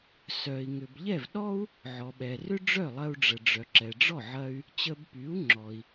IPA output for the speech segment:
s œ˩ i̯ ŋ ʏ˩ b ʎ ɛ˥˩ v ɗ ɔ˥ u̯ | ʕ ɔ˩ ɓ ɛ˩ r ʏ˥ ɖ͡ʐ œ˥˩ lˠ ɐ˧ u̯ ɖ͡ʐ ə˩ ɖ͡ʐ œ˩ ǁ ɛ˩ ɖ͡ʐ ɔ˥˩ ʕ ɐ˧ y̯ | t͡ɕ ə˧ b p y˩˥ u̯ ŋ͡ǁ ɔ˩ i̯

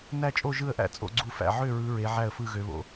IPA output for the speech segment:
n æ˥˨ t͡ʃʼ o˥˨ ʒ ɯ˥˨ ə̯ ʔ æ̰˥˨ t͡sʼ o̰˥˨ ɡ͡ǀ u˥˨ f æ̰˥˨ ʕ ø˥˨ ɹ ɯ˨˦ ɹ e˨˦ ʕ æ˥˨ ə̯ f ɯ˥˨ ɣ ø˨˦ β o̰˨˦

